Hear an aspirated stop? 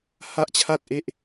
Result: yes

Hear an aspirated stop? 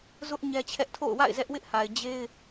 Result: yes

